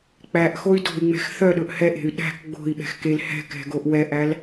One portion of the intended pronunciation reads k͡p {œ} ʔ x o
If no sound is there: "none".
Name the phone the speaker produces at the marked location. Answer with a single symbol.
æ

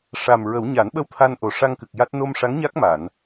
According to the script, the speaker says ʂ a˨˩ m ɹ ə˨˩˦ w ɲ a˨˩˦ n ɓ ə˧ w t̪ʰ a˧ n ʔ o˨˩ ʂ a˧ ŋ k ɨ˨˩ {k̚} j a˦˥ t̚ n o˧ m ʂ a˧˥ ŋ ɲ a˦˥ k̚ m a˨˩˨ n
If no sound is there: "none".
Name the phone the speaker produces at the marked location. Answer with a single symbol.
k̚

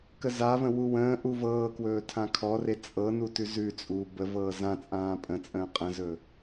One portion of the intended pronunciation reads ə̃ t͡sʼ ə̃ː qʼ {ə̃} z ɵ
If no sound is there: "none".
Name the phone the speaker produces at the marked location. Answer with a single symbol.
ə̃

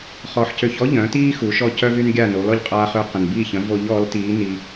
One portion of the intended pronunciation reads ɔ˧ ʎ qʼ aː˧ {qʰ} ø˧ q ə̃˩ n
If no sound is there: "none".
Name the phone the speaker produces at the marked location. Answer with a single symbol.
χ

